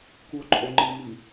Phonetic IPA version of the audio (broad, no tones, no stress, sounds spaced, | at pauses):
k u o̯ ǃʼ o ŋ͡ǃ ɨ m i